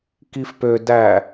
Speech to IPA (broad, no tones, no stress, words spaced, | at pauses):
kifpø dæ